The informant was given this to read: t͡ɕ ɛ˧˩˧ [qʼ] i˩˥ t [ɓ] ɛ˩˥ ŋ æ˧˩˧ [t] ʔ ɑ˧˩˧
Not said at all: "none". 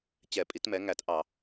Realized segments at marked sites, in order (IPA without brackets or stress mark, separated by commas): pʼ, m, t